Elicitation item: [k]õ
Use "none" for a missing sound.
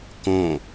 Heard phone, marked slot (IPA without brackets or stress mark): k